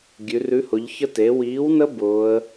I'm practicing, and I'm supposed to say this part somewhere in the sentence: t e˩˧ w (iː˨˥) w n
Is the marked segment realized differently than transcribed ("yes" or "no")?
no